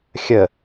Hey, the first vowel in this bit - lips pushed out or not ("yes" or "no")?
no